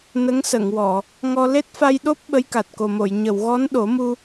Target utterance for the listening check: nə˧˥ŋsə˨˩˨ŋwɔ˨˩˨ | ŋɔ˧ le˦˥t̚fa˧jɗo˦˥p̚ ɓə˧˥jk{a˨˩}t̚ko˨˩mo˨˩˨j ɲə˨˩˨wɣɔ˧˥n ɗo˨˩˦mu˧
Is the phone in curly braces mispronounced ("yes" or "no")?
no